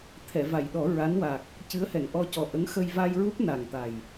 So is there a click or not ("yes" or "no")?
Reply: no